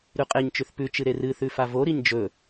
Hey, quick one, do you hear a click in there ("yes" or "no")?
no